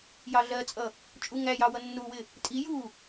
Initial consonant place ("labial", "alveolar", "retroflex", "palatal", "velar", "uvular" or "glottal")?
palatal